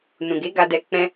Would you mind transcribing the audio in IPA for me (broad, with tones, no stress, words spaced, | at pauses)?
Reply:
nũ˨ɡe˨˦ ɡa˧dɛ˧ k͡pɛ̃˦